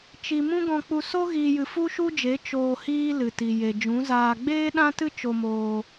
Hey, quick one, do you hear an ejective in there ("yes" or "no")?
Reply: no